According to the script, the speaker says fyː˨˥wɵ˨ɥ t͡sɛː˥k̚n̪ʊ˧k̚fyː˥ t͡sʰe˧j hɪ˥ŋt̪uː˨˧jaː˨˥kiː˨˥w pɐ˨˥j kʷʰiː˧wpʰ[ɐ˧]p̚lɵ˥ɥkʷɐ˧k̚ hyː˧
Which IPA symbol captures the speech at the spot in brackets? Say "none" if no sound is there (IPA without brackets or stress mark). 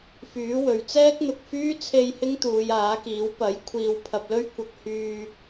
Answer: ɐ˧